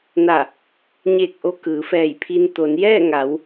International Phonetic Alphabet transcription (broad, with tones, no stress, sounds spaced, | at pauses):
n a˧˩ | ɲ eː˧˩ k̚ ʔ o˧ k ɯː˩˧ f ɛː˧˩ j pʰ i˧ n t̪ o˩˧ n j ɛː˥˨ ŋ a˩˧ w